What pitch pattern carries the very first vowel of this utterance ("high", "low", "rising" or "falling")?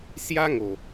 high